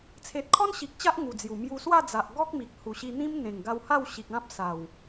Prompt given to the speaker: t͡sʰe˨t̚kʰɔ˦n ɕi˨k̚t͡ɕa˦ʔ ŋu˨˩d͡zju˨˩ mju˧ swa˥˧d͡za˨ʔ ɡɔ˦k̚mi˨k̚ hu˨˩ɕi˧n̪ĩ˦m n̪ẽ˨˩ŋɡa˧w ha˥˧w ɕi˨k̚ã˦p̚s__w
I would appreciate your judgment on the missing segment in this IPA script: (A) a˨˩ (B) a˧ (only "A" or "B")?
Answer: A